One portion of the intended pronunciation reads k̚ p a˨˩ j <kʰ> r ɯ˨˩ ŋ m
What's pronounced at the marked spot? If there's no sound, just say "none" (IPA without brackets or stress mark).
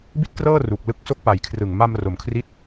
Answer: kʰ